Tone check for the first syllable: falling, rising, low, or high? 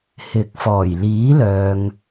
rising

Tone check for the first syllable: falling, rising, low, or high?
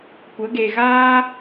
rising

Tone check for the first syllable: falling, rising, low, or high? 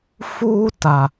high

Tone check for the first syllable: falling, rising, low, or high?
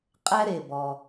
high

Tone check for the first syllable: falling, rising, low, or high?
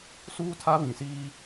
high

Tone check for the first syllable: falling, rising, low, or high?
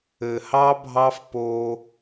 low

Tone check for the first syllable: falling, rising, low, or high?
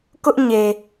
high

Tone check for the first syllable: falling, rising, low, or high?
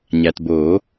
low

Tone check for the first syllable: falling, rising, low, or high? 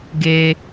low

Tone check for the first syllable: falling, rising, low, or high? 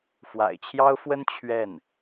low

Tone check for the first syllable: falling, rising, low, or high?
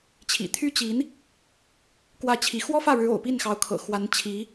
low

